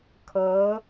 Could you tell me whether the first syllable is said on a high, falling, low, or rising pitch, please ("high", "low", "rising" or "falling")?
rising